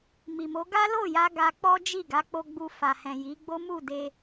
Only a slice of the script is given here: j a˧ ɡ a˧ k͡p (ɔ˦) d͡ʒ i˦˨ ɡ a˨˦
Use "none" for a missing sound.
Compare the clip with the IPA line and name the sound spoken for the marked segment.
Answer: ɔ˦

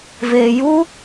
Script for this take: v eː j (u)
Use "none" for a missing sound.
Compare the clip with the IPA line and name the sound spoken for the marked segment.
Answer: u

